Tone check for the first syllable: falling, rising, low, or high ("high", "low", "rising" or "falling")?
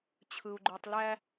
low